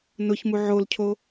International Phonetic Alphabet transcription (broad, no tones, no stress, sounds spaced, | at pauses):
n ʊ ç m u ʕ o l cʰ o